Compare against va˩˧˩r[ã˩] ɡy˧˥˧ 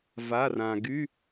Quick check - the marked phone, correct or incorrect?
correct